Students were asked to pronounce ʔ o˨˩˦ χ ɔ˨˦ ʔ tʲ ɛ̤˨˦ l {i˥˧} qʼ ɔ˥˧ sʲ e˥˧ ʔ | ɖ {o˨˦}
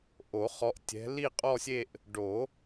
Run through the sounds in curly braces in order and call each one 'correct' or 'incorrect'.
correct, incorrect: o˨˩˦

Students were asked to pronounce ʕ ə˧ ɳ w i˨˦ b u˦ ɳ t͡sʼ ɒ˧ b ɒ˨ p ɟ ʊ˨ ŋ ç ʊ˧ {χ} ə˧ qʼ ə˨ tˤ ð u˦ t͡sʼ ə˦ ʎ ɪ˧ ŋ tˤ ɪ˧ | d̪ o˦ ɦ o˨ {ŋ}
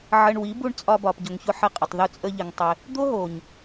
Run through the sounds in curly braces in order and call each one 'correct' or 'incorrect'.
incorrect: ħ, incorrect: ɲ

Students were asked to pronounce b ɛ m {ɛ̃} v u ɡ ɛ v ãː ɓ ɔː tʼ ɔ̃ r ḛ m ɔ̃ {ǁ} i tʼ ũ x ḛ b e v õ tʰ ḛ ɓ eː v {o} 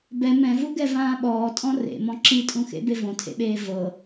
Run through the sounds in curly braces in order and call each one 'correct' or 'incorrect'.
correct, correct, incorrect: ɤ

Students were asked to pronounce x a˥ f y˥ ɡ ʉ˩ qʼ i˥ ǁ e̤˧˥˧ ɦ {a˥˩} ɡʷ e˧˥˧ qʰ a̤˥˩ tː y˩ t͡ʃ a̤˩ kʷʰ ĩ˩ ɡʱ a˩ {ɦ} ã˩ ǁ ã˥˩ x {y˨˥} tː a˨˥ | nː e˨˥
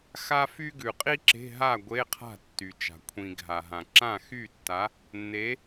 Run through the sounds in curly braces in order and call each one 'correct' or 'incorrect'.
correct, correct, incorrect: y˥˩

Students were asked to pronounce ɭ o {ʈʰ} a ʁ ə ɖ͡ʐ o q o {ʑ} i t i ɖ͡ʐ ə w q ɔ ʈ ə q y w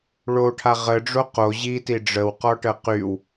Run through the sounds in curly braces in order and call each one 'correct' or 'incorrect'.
correct, correct

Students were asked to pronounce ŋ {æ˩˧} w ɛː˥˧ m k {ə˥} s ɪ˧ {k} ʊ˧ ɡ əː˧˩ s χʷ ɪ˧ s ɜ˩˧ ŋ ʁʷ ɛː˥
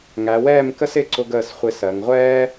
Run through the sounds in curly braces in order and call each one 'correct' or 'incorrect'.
correct, correct, incorrect: ǀ

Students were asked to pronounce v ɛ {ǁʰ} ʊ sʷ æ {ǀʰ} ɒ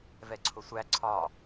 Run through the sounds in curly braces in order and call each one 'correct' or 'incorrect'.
incorrect: ǀʰ, correct

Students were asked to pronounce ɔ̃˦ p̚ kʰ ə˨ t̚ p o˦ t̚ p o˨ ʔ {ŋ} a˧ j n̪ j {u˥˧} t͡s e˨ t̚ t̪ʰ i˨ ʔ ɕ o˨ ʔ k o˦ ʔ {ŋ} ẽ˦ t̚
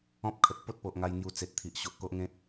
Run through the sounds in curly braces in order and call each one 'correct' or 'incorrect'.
correct, incorrect: u˧, correct

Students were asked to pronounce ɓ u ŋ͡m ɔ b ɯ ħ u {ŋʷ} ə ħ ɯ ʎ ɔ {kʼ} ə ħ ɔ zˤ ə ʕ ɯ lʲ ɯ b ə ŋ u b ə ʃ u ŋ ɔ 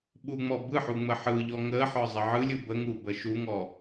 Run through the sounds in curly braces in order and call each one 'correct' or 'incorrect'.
incorrect: ŋ͡m, incorrect: ŋ

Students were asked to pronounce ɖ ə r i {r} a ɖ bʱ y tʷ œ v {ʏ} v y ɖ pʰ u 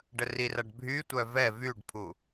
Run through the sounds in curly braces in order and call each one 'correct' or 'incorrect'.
correct, incorrect: ɛ

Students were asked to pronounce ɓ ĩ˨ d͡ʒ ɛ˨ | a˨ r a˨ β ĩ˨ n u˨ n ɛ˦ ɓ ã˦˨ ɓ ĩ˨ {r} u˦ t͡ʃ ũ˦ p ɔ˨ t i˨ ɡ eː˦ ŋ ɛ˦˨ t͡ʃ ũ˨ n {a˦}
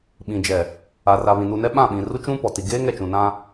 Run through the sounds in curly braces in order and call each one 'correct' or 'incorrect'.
correct, incorrect: ã˦

